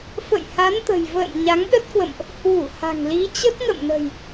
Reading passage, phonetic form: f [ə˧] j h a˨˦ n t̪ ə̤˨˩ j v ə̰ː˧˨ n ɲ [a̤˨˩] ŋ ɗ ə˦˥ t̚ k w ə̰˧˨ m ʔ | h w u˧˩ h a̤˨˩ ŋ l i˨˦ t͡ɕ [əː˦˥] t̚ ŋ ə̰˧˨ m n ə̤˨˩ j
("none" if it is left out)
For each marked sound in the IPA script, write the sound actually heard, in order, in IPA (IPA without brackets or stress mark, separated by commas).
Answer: ə̰˧˨, a˨˦, ə˦˥